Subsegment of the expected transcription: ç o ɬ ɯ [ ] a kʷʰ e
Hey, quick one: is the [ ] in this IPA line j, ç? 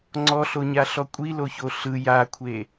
j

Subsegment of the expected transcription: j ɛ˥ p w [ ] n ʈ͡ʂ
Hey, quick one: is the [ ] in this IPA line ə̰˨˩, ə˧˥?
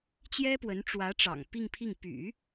ə˧˥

